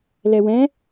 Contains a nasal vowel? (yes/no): yes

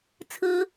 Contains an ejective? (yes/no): no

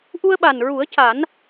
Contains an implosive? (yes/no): yes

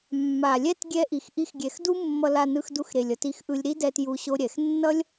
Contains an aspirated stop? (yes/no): no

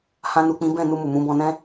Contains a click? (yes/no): no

